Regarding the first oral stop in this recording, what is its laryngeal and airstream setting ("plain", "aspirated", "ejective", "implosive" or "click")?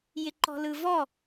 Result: click